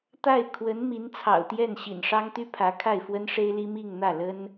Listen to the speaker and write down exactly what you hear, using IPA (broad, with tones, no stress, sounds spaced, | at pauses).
t̪ a˥˩ ɪ̯ kʰ w ə˧˥ n m i˧˥ n t͡sʰ ɑ̰˨˩ ʊ̯ t̪ j ɛ˥˩ n ɕ ḭ˨˩ n ʂ ɑ˥ ŋ t̪ y˥ pʰ ä˧˥ kʰ a˥˩ ɪ̯ f w ə˥ n ʂ e˥ ɪ̯ l i˥ m i˥˧ ŋ n̪ ä˥˩ l ə˥ n